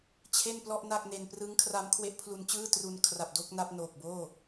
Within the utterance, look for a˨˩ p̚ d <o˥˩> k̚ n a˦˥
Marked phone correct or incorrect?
correct